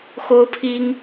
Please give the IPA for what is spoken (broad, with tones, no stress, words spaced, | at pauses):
xo˥ʊ̯pʰi˥ŋ